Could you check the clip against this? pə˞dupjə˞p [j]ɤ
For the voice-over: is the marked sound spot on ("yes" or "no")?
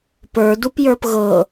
no